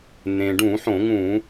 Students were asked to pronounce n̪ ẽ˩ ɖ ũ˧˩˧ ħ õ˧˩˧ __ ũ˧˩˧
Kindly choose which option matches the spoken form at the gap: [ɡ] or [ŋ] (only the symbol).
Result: ŋ